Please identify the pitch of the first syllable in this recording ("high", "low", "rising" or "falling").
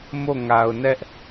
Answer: falling